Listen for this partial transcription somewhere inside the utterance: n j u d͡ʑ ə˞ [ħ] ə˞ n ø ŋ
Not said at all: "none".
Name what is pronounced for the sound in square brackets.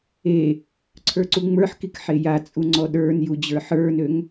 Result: ħ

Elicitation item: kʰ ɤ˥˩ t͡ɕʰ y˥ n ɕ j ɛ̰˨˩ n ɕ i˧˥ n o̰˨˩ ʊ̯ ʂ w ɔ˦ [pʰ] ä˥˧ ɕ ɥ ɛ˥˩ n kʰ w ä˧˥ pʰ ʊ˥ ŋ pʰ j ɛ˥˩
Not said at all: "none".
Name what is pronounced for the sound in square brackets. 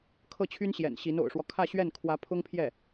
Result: kʰ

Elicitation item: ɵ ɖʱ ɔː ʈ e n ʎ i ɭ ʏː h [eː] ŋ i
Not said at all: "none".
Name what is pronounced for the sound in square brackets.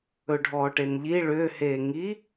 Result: eː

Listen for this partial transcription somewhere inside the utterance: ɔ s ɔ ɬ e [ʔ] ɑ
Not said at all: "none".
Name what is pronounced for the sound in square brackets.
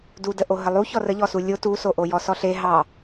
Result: ɦ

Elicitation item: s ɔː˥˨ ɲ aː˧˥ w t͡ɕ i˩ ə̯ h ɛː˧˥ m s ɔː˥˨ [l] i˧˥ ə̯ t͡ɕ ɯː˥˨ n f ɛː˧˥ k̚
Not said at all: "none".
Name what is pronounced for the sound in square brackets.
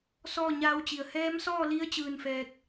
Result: l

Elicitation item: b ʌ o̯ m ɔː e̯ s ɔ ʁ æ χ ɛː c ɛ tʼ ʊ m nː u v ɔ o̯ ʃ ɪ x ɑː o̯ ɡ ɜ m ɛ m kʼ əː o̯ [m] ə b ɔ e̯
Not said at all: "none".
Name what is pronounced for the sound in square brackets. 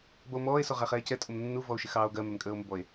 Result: m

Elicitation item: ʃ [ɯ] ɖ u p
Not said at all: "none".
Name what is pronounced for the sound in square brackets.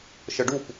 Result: ɤ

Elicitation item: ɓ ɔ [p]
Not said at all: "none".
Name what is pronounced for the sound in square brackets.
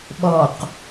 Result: q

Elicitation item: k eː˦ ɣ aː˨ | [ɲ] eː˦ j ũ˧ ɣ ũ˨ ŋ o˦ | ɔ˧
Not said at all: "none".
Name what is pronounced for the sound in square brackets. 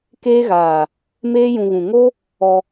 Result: m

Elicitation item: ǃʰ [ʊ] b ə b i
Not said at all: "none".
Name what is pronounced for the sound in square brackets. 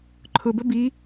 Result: ʊ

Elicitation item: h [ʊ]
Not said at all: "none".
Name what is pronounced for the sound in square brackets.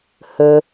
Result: ɵ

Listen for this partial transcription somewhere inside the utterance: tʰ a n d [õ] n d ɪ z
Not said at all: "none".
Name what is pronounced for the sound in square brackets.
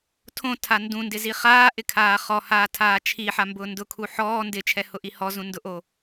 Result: ũ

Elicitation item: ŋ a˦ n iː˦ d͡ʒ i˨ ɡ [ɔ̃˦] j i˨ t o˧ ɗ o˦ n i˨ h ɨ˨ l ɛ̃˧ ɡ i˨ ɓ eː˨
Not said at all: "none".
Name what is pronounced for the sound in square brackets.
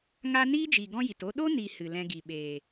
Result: ɔ̃˦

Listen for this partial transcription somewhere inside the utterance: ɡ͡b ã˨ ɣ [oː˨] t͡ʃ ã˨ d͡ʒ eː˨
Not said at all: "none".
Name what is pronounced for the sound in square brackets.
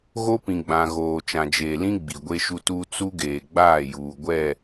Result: oː˨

